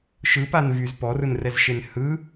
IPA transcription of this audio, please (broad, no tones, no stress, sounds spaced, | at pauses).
ʃ ɯ p a n v y z p ɔ r ɯ n r ɛ z ʃ e n h ɯ